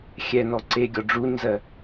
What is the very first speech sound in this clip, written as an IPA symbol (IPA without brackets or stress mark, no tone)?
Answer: xʲ